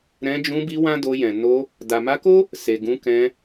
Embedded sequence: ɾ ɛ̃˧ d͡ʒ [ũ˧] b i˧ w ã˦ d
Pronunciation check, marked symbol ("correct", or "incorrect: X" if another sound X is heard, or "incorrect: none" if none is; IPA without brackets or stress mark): correct